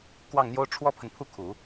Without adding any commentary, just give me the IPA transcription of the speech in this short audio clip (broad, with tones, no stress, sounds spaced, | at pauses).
k w ɑ˥˩ ŋ n̪ j o˥ ʊ̯ ʈ͡ʂʰ w ɔ˥ pʰ ə˨ n pʰ u˥˩ kʰ u˨˩˦